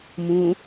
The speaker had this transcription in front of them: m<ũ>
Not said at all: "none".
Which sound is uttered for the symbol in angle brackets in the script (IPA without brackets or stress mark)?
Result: ũ